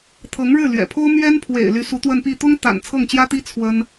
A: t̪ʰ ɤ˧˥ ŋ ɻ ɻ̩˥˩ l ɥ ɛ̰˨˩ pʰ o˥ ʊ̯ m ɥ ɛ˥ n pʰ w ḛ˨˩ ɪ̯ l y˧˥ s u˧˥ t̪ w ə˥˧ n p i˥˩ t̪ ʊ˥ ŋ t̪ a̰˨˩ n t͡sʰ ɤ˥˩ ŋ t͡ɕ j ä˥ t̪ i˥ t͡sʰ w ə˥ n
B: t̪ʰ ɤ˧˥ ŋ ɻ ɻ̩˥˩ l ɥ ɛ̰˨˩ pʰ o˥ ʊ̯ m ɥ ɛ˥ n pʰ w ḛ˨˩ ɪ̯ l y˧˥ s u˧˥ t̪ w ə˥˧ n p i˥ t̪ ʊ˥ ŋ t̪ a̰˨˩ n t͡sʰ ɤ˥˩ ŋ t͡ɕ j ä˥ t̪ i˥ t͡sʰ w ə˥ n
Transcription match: A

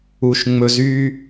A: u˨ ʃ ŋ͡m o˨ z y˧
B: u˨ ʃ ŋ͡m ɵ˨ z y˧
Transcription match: B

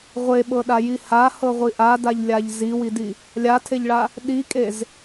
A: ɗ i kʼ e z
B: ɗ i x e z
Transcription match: A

